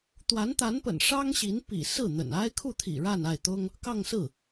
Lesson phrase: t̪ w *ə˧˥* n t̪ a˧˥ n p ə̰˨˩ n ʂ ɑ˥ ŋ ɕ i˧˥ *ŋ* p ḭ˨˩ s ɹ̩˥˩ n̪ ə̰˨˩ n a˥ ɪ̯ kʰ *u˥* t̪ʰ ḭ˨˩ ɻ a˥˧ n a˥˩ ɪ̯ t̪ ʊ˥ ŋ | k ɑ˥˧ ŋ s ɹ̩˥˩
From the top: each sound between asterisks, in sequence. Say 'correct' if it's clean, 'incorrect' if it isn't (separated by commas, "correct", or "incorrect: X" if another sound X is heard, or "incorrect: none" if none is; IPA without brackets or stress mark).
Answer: incorrect: a˧˥, incorrect: n, incorrect: u˥˩